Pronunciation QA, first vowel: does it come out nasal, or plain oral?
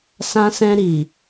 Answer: nasal